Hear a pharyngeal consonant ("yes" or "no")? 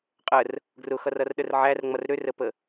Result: yes